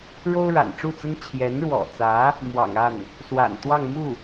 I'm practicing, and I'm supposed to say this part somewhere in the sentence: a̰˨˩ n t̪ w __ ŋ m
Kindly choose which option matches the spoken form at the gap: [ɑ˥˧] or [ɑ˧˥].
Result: ɑ˥˧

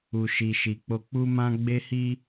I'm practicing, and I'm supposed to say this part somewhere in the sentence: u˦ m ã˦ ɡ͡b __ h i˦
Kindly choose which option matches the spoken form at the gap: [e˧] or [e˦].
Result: e˦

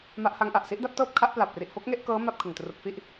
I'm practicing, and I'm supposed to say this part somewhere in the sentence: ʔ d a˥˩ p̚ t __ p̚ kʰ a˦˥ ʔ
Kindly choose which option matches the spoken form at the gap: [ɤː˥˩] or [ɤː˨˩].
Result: ɤː˥˩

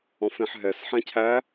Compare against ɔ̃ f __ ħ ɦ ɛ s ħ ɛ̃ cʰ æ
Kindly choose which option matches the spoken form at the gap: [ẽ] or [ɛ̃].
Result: ẽ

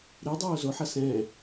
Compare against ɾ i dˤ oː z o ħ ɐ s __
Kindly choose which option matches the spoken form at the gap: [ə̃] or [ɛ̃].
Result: ɛ̃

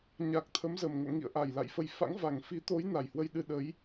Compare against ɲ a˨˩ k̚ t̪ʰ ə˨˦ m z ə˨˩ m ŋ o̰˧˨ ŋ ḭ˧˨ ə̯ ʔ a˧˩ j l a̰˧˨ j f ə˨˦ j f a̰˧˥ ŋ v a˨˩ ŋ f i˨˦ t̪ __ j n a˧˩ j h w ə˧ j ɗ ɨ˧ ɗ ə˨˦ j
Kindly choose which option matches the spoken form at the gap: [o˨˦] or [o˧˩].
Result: o˨˦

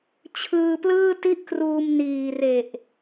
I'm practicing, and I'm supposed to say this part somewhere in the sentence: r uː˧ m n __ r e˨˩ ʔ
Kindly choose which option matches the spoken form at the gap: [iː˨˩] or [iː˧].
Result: iː˨˩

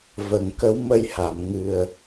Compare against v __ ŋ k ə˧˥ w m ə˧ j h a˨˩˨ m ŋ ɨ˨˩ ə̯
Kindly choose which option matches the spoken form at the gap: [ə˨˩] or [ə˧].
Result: ə˨˩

